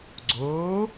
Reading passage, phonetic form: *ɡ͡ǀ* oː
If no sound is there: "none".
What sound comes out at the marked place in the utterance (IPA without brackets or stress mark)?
ɡ͡ǀ